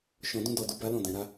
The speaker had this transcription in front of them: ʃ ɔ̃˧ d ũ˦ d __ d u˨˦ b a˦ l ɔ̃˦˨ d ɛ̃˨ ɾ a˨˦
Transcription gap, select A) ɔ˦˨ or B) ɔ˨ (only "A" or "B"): A